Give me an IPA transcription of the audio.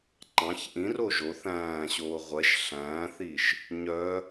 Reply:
ŋ͡ǃ ɑ̃ ç ʔ ĩ r o ʒ o θ æ̃ː ɕ oː ʁʷ ɛ ʃ ɬ æ̃ː θ i ʃ | ɲ œ

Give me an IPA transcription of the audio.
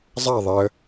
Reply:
zˤ a ðˤ e ə̯

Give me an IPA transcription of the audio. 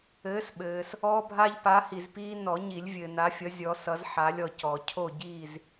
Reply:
ɘː˨˥ s ɓ ɘː˨ s | ɔː˦ bʱ a˦ ʎ p a˨˥ h i˨ z p iː˦ n ɔ˨˩˦ ɲ i˨˩˦ lʲ vʲ ɘː˨ n a˨˥ fʲ ʌ˨˥ zʲ ɔ˨˥ s ʌ˨˥ z ħ a˨˥ lʲ ɔ˨ c ɔ˨˩˦ cʰ o˥˨ ɟ iː˥˨ z

